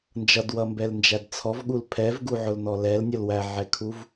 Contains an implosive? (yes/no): yes